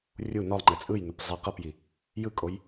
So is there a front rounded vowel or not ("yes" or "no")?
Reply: no